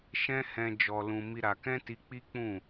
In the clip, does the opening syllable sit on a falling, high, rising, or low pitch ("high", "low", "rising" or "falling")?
high